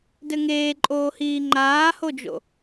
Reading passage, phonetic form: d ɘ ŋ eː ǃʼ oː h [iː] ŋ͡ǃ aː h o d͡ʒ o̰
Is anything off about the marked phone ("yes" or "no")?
no